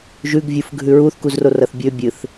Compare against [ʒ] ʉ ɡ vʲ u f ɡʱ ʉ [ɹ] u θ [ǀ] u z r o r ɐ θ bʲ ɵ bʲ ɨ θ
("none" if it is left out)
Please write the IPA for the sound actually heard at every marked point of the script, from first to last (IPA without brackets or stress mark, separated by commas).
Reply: ʒ, ɹ, k